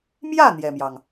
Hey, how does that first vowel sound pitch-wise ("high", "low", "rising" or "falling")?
falling